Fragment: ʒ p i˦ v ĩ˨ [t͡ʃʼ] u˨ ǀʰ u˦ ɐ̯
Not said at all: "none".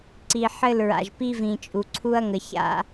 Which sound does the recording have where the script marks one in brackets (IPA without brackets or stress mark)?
t͡ʃʼ